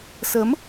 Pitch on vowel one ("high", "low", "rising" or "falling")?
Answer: rising